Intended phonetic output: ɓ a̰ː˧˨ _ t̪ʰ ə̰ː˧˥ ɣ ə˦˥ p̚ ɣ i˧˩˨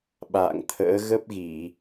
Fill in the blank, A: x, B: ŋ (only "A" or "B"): B